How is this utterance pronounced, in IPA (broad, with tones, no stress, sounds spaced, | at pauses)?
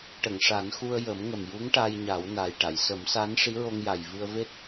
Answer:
ʈ ə˨˩˨ ŋ ʂ a˨˩˦ n x u˧ ə̯ j ə˨˩˦ m ŋ ə˨˩ m j u˧˥ ŋ ʈ a˧ j ɲ a˨˩˦ w n a˨˩ j ʈ a˨˩˨ j s ə˨˩˦ m s a˧˥ n ʂ i˧˥ ɹ o˧ ŋ j a˨˩ j v ɨ˧ ə̯ v e˦˥ t̚